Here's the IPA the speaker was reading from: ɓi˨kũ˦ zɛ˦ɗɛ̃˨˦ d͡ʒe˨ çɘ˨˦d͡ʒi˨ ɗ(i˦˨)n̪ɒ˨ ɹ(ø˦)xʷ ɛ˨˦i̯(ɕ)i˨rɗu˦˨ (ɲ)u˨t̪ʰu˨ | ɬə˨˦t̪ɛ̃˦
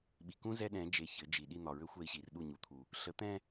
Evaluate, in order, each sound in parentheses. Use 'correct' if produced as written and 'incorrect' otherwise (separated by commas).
correct, correct, correct, correct